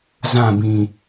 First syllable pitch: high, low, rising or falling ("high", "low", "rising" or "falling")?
falling